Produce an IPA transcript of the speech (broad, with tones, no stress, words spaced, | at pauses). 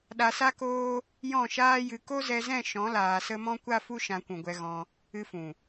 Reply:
ɗa˧sa˦koː˦ | jɔ̃˦˨ʃaː˦jɨ˧ ko˦zɛ˧zɛ̃˦˨ ʃɔ̃˨˦laː˨sə˧ mɔ̃˦kʷa˦fu˦ ʃã˧kʷũ˨ɡʷɛ˧ ɣɔ̃˧ | ɨ˧fũ˨